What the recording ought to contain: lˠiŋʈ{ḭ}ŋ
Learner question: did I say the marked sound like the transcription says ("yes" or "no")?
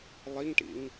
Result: yes